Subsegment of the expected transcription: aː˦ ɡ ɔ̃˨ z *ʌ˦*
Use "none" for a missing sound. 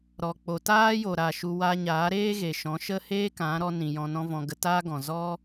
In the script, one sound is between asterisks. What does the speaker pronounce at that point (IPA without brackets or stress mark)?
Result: ɔ˦